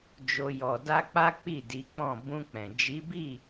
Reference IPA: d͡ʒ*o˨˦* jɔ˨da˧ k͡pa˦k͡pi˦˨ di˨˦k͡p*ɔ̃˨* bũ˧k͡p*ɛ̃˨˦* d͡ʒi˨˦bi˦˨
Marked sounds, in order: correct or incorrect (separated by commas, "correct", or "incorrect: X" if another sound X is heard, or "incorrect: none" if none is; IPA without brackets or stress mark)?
incorrect: o˧, incorrect: ɔ̃˦˨, incorrect: ɛ̃˨